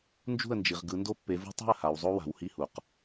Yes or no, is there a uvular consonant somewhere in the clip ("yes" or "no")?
yes